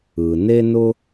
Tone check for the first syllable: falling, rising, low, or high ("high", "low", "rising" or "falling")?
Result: low